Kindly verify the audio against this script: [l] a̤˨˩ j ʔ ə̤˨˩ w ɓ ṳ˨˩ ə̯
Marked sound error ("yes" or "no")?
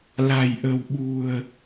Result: no